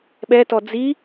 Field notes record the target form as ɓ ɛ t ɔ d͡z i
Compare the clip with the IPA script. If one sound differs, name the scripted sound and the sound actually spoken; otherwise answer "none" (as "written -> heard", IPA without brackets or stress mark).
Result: none